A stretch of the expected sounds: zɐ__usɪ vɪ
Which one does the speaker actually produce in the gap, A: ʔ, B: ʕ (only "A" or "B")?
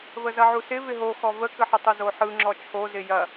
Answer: B